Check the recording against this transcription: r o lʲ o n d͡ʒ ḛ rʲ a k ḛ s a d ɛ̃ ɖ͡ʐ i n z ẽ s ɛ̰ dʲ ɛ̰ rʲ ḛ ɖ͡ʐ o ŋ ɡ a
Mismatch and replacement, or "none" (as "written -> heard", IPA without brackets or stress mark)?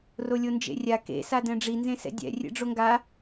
none